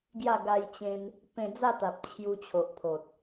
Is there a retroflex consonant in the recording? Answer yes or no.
no